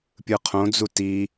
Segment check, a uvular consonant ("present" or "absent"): present